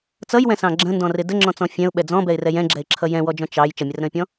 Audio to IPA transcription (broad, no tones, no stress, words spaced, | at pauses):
t͡sʌjwɛ̃sɑ̃ ɡ͡ǁə̃ndɔ̃rɪ dəŋ͡ǁɔ̃t͡sɔ̃ fʲɛ̃ʊ̯ɓɛ d͡zɔ̃bɛɪ̯rɛ jɛ̃ɡ͡ǁɛɪ̯ǁʰʌ jɛ̃wɔd͡ʒɔ̃ t͡ʃɑj t͡ʃʌmʲərɾə̃ɪ̯pʲɔ̃